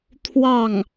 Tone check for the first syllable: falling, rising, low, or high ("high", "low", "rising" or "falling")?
falling